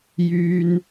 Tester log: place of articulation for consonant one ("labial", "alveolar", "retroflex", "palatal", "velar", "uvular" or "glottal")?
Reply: palatal